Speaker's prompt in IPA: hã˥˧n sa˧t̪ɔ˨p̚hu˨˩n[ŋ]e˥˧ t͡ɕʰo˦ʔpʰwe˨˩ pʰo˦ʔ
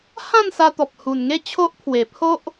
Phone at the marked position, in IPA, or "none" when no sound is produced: ŋ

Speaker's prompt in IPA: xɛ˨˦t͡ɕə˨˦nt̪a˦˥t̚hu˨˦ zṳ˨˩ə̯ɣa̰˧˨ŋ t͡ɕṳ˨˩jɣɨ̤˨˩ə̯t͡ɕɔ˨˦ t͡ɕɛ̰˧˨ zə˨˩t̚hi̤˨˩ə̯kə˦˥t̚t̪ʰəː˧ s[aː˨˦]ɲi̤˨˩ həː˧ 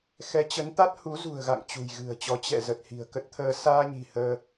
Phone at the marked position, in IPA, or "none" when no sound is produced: aː˧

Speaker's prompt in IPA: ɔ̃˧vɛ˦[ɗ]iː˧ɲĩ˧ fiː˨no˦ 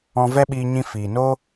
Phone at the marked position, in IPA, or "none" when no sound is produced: ɓ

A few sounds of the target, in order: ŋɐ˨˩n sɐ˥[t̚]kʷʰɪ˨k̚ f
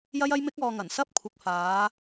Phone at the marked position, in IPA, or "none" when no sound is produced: p̚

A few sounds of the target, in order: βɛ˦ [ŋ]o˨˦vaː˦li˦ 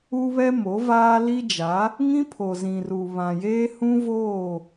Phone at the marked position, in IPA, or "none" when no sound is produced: m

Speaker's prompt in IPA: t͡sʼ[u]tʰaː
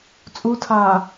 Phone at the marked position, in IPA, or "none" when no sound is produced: u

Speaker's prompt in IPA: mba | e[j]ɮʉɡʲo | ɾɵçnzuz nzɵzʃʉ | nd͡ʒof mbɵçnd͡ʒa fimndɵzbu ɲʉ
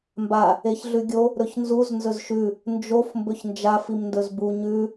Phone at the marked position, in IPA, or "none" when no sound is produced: ç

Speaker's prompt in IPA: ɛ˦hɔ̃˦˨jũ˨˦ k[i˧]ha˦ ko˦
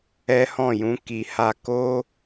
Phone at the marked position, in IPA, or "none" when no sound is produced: i˧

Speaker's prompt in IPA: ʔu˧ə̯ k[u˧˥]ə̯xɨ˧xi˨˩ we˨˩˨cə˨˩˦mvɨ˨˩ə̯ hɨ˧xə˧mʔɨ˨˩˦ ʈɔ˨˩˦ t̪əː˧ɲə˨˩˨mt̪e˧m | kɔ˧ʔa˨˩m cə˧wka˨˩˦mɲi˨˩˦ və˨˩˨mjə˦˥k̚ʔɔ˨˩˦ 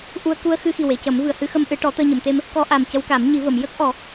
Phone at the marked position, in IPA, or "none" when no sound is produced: u˧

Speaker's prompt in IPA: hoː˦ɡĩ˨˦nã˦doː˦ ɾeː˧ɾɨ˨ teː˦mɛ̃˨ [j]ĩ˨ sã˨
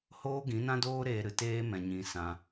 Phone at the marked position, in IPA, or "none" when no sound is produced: ɲ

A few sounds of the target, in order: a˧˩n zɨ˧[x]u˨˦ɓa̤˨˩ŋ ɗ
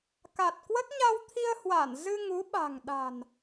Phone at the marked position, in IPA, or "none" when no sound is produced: ŋ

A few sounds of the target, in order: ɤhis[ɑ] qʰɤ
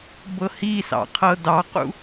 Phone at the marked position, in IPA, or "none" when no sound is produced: ɑ̰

